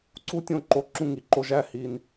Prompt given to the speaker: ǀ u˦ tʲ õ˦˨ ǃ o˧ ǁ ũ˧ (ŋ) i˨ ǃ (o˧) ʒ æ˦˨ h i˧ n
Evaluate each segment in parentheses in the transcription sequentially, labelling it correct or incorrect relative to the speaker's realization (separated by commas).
correct, correct